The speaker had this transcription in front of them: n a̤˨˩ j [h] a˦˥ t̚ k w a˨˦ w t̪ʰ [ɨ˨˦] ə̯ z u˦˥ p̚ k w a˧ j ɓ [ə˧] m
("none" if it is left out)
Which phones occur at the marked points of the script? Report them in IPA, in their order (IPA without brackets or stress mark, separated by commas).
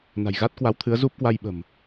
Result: ɣ, ɨ˨˦, ə̤˨˩